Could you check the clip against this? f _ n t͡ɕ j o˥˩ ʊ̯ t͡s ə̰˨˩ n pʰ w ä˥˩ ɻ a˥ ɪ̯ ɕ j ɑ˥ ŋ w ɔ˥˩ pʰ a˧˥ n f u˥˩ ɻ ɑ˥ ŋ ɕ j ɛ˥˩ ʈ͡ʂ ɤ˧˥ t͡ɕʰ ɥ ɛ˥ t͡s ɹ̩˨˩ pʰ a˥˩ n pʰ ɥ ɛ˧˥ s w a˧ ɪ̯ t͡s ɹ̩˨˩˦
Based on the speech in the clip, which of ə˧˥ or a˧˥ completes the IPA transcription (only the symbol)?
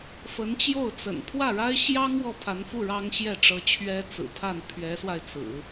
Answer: ə˧˥